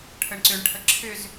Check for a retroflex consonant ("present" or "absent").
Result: present